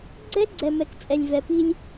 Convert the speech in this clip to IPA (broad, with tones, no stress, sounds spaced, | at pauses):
ɡ͡ǀ ɛ˦ ɡ͡ǀ ɛ˨ m ɛ˨ k t͡sʼ ɛ˨ lʲ v ɛ˨ p i˦ lʲ